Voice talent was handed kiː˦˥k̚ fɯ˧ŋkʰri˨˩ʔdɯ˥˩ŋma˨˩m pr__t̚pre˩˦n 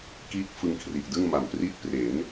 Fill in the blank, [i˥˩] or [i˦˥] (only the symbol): i˦˥